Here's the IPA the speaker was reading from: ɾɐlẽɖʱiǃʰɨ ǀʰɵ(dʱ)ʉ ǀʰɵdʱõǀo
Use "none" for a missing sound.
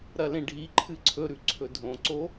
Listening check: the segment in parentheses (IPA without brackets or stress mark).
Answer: ɾ